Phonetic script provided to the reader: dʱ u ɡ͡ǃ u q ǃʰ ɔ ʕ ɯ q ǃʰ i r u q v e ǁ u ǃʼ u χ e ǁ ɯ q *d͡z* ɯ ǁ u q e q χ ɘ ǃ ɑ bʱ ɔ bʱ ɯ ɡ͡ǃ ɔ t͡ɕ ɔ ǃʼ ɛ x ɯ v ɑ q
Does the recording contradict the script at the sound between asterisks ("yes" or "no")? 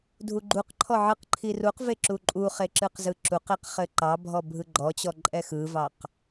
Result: yes